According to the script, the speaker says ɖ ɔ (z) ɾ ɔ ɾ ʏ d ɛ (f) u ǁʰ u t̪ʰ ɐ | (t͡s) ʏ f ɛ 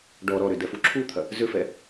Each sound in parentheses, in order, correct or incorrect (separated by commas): incorrect, correct, incorrect